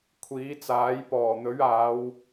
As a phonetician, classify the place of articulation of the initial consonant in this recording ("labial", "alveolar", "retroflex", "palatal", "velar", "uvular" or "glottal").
velar